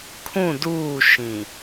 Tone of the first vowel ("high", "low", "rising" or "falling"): falling